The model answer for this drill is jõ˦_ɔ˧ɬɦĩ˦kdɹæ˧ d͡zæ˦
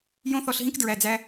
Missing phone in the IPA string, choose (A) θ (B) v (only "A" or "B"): A